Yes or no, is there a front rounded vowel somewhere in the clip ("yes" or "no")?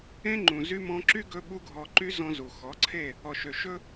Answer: yes